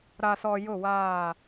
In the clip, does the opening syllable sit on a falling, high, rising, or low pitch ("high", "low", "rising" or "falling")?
low